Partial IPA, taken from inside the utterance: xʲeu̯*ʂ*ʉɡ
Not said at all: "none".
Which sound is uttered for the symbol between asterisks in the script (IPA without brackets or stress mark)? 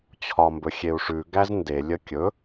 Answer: ʂ